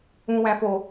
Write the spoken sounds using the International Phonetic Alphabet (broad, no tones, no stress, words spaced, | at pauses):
ũwæ̃fo